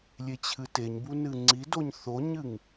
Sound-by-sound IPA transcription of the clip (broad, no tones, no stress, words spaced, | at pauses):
lʲet͡ɕʰɨteɲbu nɨŋ͡ǀidoɲ θoɲɨŋ